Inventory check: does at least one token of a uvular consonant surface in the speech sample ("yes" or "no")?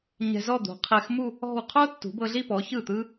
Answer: yes